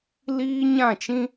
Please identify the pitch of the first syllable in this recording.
high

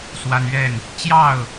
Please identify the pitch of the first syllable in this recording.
high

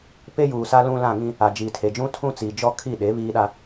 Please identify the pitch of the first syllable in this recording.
high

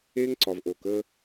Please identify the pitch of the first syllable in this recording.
high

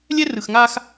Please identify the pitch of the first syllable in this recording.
high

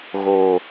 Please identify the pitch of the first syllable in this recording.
low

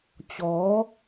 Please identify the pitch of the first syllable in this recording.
rising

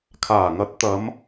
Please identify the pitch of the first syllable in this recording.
low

